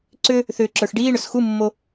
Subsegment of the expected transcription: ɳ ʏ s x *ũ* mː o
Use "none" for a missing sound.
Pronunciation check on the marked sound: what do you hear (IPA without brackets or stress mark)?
u